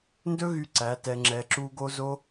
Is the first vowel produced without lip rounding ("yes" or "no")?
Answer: no